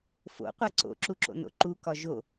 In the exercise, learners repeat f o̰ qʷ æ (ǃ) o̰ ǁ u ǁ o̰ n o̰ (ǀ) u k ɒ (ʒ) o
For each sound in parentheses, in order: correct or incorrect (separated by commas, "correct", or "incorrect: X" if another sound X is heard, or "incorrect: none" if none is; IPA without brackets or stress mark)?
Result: incorrect: ǀ, incorrect: ǃ, correct